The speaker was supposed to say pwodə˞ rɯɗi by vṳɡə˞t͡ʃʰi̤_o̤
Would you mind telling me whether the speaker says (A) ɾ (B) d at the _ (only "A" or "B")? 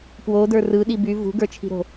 A